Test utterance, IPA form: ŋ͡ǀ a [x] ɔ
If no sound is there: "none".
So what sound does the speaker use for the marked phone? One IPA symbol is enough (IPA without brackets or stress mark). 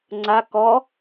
k